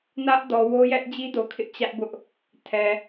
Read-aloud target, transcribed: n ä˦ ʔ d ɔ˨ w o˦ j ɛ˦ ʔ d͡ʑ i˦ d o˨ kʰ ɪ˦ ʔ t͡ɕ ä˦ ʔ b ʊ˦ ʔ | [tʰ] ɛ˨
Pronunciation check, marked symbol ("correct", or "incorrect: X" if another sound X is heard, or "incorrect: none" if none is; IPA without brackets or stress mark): correct